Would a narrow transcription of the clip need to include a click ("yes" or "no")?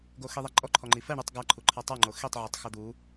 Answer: yes